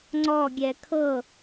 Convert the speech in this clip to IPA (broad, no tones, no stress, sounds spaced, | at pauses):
ŋ͡ǀ ɔ ɡʲ ɛ kʰ ɤ